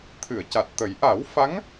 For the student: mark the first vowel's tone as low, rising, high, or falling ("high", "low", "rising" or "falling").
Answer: low